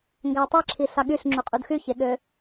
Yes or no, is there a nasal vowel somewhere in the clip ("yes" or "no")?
no